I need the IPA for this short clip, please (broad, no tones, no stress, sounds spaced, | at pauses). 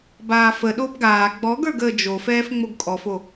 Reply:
b aː f ə ɗ o b ɡ aː ɡ͡b ɔ ɡ ə˞ ɡ əː d͡ʒ o f ɛː f ŋ͡m o ɡ kʼ ɔ f o